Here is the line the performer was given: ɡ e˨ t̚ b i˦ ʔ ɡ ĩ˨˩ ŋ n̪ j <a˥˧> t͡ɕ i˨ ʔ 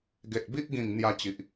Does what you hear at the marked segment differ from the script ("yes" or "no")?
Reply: yes